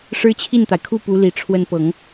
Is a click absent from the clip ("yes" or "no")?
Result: yes